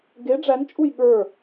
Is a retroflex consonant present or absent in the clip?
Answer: present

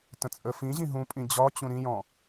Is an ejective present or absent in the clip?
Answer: present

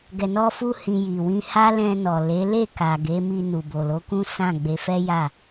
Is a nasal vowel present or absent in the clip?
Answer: present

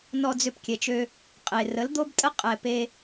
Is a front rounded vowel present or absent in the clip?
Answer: present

